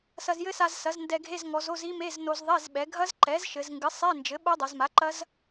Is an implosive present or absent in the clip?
present